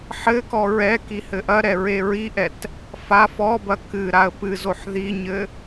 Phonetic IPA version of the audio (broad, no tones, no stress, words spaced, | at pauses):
ħɘkɔ ɹɛ kihɘʔɐɾɛ ɹeɹiʔɛt | fa fɔbɐ kɨ ɾaə̯pɨzoħ ðiɲɘ